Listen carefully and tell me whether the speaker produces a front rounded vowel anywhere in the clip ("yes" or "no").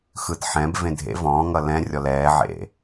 no